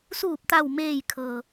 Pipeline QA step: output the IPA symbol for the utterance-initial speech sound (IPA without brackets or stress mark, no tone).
s